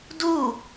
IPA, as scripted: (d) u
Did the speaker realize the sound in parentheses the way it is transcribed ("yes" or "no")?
yes